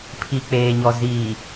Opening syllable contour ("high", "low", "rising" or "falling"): low